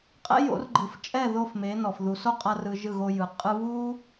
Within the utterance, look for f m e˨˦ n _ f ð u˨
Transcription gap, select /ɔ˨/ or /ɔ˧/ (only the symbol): ɔ˨